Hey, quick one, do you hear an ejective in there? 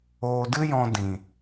no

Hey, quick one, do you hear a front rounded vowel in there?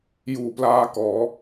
no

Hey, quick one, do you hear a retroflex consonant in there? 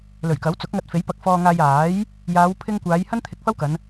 no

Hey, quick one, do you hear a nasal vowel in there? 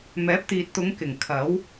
no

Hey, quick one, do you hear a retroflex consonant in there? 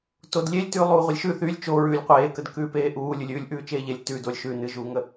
no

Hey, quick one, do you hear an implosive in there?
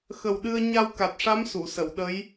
yes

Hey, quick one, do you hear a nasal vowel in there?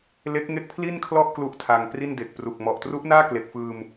no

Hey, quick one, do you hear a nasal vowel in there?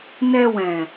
yes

